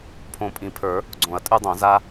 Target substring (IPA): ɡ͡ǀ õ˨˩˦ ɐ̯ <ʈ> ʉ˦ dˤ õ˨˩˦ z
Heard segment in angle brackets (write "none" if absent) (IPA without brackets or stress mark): tʼ